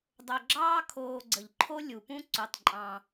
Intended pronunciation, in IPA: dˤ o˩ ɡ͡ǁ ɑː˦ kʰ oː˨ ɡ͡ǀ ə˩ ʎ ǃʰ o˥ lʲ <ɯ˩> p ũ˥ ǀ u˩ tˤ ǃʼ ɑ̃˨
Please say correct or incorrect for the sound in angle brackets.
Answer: incorrect